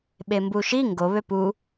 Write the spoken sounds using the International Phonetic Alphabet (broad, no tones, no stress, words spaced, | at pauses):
ɓembuʃi ŋɡo βøpu